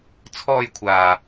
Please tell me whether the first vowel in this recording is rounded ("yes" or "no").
yes